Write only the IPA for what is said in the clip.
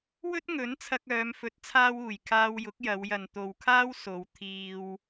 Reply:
w ɵ˥ t̚ ŋ ɵ˨˥ n t͡sʰ ɐ˧ k̚ œː˨˧ m f ɵ˨˥ t̚ t͡sʰ aː˧ w uː˨˩ j kʰ aː˧ w j ʊ˨˥ k̚ j ɐ˨˧ w j ɐ˨ n t̪ o˨ w kʰ aː˥ w s o˨˧ w t̪ʰ iː˧ w

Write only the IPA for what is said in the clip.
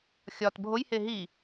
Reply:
xʲ ɒ t bʱ o j h e ɦ i

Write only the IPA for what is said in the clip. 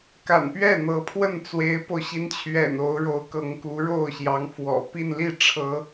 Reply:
k a̰˨˩ n p ɥ ɛ˥˩ n̪ ɤ˧˥ pʰ w ə˥˩ n t͡s w e˧˥ ɪ̯ p o˧ ʊ̯ ɕ i˧˥ n t͡ɕʰ ɥ ɛ̰˨˩ n o˧˥ ʊ̯ ɻ o˧˥ ʊ̯ k ɤ˧˥ ŋ k u˧˥ ɻ o˥˩ ʊ̯ ɕ j ɑ˧˥ ŋ f w ɔ̰˨˩ p i˥˧ n l i˥˩ ʈ͡ʂʰ ɤ˧˥

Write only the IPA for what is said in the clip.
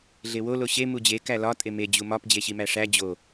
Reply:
ɮ e w o l o ɕ e m u d͡ʑ e k æ l ɒ tʼ e m e d͡ʑ u m ɒ p d͡ʑ e ɕ i m æ ʂ æ d͡ʑ o

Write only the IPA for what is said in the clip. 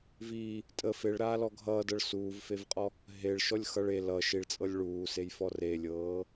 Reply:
v i | tʼ ə f e ɭ ɾ aː l ɔ ɡʱ ʌː d ɤ ɭ s uː v f e v qʼ ɔ | ɦ e ɭ ʃ ɔ lʲ x ʌ ɭ e l ʌ ʃ i ɭ t͡sʼ ɤ lʲ ɭ uː s e j f ɔ r e lʲ ɤː

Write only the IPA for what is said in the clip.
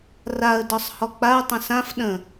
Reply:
r a ə̯ d ɒ sˤ h ɔ k͡p a ə̯ tˤ ə̃ s ã f ɗ ə̃

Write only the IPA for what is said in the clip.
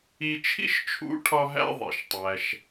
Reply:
i˧ t͡ʃʰ ḭ˥ ʃ t͡ʃʰ ṵ˧˥ ʈʰ ɒ˧ ɦ æ̰˧ ðˤ ḛ˩ ʃ tˤ æ˩ ʃ

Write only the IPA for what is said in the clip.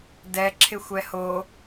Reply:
d ɛ ǁʰ ɪ xʷ ɛ h o

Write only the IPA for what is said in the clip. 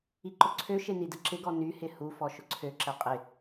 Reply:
i ǃ ʊ ǀʰ ø ʃ e n i d ə ǁ ɪ ɡ ɔ n y h ɪ h u f ɔ ʃ ʊ ǀʰ ø ǁ ɛ qʼ ɪ

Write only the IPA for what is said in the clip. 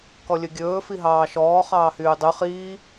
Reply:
k ɔ lʲ ɵ ɡʲ ɵː f i ɦ ɑː ʃ ɔː χ ɑː h yː dˤ y χ iː

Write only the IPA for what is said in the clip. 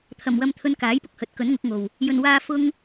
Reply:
t̪ʰ ɐ˨˩ m w ɐ˧ m t̪ʰ ɵ˧ n k aː˨˥ j p ʊ˧ k̚ h ɵ˨˥ t̚ k ɵ˨˥ n ŋ ʊ˨˥ k̚ ŋ o˨ w | j ɵ˨ n w aː˧ f ʊ˥ ŋ

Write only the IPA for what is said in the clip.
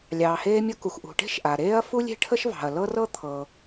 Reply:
lʲ ɑː˩ h eː˥ mʲ ɤ˥ k u˩ x ʔ ṳ˩ ʈ e̤˥ ʃ ʔ a˩ ɾ eː˥ ɐ̯ f u˥ lʲ e̤˥ ʈʰ ə˥ ʃ v ɑ̤˩ ɐ̯ l ɤ˥ r ɤ˥ t̪ʰ ɤ˩

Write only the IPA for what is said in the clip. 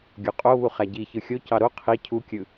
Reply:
ɡʲ o qʼ o β u χ æ ɟ i ç ɯ xʲ o c ɑ ɾ o qʰ i cʰ u kʲ ɯ

